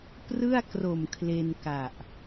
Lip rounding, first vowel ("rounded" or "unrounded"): unrounded